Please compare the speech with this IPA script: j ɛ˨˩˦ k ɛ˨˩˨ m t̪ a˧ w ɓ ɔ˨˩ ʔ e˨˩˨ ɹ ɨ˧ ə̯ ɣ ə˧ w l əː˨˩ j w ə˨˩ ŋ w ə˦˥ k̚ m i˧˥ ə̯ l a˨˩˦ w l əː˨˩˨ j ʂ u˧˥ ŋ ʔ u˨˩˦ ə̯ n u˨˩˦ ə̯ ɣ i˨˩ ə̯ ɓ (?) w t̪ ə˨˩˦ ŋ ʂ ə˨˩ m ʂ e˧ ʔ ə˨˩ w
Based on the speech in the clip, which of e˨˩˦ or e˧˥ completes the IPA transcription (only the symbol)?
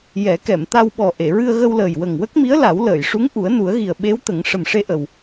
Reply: e˧˥